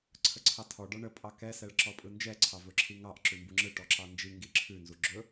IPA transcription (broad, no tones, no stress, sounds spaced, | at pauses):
ǀʰ ə ǀʰ ɑ tʰ ɔ ɖ ɔ ɳ ə pʼ ɑ k ɛ s ɛ ɭ ǁ ɔ pʼ ɯ n d͡ʒ ɛ ǀʰ ɑ v ɵ ǁʰ i ŋ ɑ ʔ ǁ ʉ m b u ŋ͡ǁ ɯ ʈ ɔ ǁ ɑ n d͡ʒ i ŋ ɡ i ǁʰ ʉ n z u ɡ͡ǁ ɵ